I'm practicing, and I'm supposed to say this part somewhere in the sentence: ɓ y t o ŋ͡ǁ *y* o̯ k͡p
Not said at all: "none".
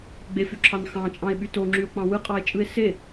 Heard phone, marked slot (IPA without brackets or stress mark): y